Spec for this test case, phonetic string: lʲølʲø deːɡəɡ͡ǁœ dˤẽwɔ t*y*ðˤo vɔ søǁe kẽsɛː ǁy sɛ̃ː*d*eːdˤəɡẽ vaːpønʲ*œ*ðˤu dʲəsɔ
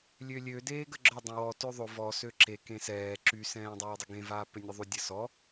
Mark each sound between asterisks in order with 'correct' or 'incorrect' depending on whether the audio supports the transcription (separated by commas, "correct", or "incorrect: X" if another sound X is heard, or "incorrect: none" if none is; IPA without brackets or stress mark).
incorrect: ø, incorrect: dˤ, correct